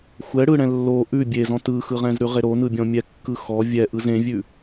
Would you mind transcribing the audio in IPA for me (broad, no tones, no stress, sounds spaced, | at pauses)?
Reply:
xʷ ɛ ɽ ɯ ɽ ɛ̃ lː o ʔ ʉ bʲ e z ɔ̃ t ɯ x ɯ ʁ ɛ̃ z ɾ ʉ ʁ e ɾ o n ɯ bʲ ɔ̃ mʲ ɛ kː ɯ x ɔ vʲ ɛ ʔ ɯ z ẽ vʲ ʉ